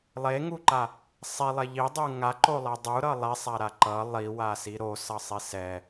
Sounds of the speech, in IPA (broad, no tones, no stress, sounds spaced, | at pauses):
lˠ e ŋ u ǃ a | sˤ e lˠ e ʎ i dˤ ɯ ŋ a ǃ o lˠ ɛ dˤ u ɾ ʌ lˠ e sˤ a ɾ a ǃ ʌ lˠ i w a s i ɾ o s ʌ sˤ i s ɛ